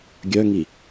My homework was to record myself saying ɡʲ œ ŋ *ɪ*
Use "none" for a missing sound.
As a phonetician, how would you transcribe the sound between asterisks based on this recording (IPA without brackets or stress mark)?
i